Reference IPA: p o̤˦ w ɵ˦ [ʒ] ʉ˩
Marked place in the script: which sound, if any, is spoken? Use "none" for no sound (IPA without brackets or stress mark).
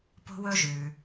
ʒ